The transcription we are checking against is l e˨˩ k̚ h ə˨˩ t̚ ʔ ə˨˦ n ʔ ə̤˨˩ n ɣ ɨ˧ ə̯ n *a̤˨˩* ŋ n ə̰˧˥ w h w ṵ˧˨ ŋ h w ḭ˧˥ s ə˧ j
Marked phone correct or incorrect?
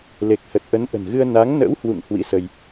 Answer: incorrect